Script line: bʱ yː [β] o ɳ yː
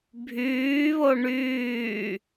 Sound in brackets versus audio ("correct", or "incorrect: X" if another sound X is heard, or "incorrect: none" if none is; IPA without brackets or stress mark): correct